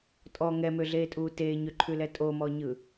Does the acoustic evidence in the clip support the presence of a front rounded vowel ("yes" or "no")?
yes